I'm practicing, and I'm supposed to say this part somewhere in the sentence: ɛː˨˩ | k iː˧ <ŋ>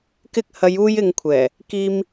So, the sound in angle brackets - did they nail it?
no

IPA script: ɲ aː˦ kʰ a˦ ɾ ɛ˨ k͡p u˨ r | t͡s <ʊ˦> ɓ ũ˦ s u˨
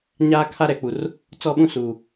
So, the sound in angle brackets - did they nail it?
no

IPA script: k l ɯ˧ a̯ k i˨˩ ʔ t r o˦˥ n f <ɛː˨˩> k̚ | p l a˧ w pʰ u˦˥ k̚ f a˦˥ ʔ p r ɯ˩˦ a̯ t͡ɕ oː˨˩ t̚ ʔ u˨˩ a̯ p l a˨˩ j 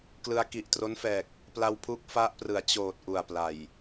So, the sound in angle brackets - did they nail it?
yes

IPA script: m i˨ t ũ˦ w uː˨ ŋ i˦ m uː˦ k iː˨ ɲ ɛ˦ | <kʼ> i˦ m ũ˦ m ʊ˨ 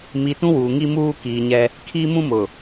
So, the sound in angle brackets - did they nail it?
no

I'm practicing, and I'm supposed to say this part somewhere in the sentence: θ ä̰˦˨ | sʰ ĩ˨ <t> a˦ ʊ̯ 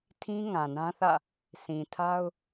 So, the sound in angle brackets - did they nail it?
no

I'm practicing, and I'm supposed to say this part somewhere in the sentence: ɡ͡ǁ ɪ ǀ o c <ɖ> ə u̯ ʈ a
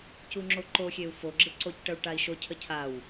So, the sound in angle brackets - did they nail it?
no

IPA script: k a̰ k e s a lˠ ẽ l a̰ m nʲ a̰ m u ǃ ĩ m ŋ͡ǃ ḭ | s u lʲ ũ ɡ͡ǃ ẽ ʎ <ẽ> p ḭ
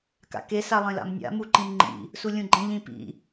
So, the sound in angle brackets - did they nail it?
no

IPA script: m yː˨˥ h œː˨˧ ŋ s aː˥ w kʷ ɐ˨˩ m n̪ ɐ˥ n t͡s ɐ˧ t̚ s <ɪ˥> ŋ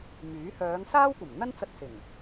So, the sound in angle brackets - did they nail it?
no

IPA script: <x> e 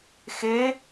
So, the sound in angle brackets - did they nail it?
yes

